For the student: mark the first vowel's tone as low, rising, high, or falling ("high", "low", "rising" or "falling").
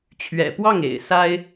low